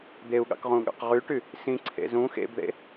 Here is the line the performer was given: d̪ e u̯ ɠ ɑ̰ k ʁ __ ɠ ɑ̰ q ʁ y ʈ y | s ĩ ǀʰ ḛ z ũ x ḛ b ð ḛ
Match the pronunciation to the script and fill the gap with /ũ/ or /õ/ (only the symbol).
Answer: ũ